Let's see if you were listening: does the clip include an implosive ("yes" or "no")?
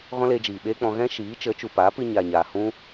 yes